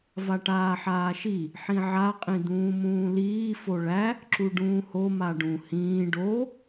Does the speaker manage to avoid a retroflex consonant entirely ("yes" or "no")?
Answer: no